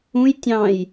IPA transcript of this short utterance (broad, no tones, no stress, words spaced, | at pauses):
ũj tʲɑ̃j